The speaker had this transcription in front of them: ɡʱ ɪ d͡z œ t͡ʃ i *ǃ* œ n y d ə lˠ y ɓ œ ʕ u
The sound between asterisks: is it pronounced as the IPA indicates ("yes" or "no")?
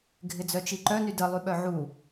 yes